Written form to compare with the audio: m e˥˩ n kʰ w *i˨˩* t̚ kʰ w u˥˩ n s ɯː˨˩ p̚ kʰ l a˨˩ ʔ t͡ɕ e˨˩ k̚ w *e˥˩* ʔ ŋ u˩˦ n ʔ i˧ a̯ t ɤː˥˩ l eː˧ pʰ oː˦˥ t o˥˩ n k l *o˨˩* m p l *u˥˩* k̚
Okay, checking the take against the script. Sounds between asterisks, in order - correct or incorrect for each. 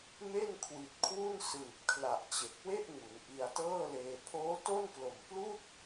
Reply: correct, correct, correct, correct

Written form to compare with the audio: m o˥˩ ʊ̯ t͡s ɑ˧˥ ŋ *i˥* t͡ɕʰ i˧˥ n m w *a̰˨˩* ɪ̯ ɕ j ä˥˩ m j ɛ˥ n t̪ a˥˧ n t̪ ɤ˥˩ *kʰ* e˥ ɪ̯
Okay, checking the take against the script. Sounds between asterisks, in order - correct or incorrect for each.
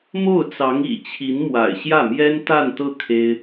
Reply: incorrect, correct, correct

